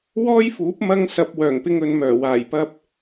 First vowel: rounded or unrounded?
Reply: rounded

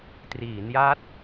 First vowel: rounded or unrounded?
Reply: unrounded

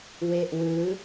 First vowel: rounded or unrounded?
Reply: unrounded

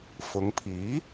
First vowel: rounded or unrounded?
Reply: rounded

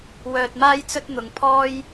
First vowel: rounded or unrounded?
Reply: rounded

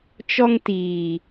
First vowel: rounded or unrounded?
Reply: rounded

